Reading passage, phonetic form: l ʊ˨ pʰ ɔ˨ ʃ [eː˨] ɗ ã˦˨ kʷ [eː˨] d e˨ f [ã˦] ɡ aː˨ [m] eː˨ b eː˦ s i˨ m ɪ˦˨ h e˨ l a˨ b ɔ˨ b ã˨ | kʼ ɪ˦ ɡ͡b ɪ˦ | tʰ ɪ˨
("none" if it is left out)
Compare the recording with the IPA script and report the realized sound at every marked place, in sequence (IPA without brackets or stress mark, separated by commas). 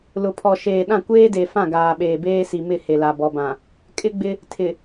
eː˨, eː˦, ã˦˨, ɓ